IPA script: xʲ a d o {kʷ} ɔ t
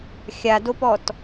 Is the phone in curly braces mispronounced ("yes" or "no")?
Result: yes